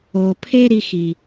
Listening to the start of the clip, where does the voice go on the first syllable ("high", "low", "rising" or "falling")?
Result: low